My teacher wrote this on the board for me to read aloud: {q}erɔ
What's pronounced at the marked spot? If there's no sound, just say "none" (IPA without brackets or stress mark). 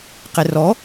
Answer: q